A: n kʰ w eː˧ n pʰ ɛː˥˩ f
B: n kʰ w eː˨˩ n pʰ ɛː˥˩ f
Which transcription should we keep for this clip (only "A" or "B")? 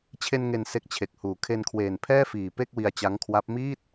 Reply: B